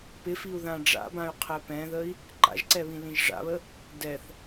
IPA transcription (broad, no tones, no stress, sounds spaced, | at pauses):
p ɪ f i u̯ ð ã ɖ͡ʐ a̰ b ã y̯ qʰ ɛ p ɛ̃ ð ə i̯ | ǃ a̰ ʒ ǀ ɛ β ĩ l ĩ ʒ ʐ a̰ β ə | d ɛ θ